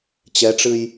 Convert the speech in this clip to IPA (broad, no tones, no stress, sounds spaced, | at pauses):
t͡ɕ ɛ ʈ͡ʂ ɨ j